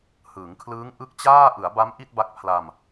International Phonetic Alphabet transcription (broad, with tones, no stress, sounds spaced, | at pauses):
h ɯː˩˦ ŋ kʰ l ɯː˦˥ ŋ ʔ ɯ˦˥ k̚ t͡ɕ aː˥˩ ʔ ɯ˩˦ a̯ b a˦˥ m ʔ i˥˩ t̚ b a˦˥ k̚ pʰ l a˧ m